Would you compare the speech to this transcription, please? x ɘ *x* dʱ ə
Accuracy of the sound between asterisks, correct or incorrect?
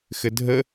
incorrect: none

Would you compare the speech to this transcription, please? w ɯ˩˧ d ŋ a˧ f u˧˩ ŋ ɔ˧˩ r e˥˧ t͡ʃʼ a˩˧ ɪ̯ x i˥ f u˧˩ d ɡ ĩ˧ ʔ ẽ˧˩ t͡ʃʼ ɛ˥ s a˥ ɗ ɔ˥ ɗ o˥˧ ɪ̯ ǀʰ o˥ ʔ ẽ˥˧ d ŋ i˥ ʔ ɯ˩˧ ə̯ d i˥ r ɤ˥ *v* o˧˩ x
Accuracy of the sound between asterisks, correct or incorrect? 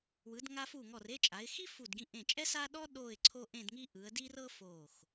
incorrect: f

